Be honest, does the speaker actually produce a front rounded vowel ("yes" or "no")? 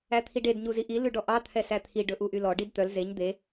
yes